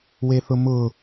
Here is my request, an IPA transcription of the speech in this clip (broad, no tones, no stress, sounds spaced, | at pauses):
w e θ ʊ m ʊ